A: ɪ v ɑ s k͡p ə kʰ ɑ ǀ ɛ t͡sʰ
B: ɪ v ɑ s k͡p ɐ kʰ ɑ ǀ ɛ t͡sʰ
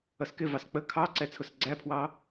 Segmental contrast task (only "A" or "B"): A